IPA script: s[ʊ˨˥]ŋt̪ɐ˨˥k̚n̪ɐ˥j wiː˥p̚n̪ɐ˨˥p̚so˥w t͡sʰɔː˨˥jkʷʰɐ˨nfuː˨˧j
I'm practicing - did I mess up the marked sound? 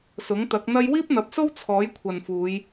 no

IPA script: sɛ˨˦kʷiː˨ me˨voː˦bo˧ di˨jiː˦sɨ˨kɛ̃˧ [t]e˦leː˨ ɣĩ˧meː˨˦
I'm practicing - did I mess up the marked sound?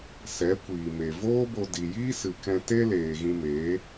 no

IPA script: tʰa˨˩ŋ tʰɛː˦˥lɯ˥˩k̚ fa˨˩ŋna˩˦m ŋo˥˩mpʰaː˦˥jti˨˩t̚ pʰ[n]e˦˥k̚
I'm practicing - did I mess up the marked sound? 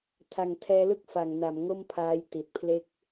yes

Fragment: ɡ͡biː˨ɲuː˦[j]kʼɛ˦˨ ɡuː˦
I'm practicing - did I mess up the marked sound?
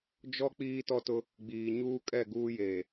yes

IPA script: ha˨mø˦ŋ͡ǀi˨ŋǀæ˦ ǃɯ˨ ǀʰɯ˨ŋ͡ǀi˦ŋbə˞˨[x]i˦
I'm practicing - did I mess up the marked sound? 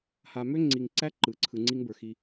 no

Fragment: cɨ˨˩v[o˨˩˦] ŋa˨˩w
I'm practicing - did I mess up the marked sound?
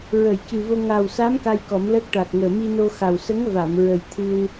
yes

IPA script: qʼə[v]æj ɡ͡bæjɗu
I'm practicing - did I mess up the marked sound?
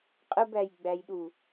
yes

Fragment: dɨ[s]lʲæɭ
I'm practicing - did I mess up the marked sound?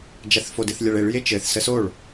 yes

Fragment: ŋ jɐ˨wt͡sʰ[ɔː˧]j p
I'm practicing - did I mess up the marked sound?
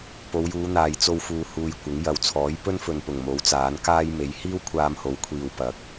yes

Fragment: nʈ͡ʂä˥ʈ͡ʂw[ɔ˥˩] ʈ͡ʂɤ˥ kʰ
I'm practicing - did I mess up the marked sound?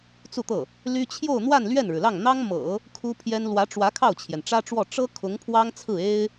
no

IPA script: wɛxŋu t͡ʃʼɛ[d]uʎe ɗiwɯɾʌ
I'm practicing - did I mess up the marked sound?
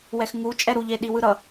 yes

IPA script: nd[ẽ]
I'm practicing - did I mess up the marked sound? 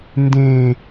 no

